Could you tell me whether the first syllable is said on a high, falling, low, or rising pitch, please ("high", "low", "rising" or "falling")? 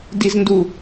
high